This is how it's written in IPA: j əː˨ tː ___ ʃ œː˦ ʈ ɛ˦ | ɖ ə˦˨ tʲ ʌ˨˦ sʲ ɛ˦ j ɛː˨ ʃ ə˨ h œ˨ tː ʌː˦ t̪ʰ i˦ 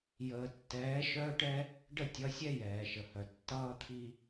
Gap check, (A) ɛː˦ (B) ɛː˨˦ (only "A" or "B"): B